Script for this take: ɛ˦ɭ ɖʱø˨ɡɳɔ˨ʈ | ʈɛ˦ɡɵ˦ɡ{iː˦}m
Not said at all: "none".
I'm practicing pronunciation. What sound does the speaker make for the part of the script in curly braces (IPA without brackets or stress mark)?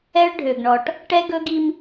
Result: i˦